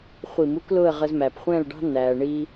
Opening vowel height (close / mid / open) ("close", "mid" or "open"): close